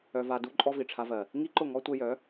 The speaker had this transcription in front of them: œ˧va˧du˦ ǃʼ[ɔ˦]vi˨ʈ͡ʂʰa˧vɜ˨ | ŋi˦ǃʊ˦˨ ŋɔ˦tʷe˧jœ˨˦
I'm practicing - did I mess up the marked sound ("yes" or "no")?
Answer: no